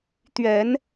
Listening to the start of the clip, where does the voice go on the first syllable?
rising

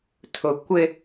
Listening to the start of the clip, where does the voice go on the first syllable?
high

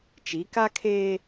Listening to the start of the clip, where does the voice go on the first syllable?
rising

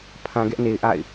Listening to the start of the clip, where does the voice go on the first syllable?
low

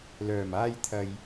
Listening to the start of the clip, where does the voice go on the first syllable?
low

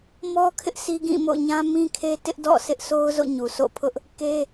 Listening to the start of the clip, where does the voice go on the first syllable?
high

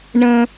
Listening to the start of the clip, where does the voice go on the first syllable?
high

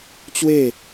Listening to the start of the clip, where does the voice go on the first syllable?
falling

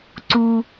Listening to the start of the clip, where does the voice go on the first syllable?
high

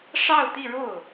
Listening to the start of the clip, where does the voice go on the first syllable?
falling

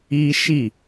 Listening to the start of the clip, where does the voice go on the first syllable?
high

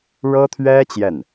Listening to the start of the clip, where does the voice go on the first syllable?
high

